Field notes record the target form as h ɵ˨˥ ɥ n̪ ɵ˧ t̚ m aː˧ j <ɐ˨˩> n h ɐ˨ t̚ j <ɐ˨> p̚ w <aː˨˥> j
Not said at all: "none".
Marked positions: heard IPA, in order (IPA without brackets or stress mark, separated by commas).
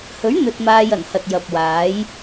ɐ˨˩, ɐ˨, aː˨˥